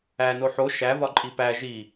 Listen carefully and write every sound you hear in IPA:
æ n o ħ o ʃ æ v ɒ ǃʼ i p æ ʒ i

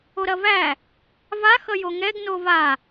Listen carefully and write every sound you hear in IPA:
o ɾ ɐ v æ | v a x ʌ j o ŋ ɛ ɡ n o v a

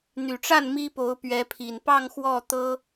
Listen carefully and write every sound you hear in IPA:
n̪ y˨˩ ʈ͡ʂ a˥˩ n m i˥ p o˧˥ ʊ̯ p ɥ ɛ˧˥ pʰ i˨˩ n p ɑ˥˧ ŋ x w ɔ˥˩ t̪ ɤ˥

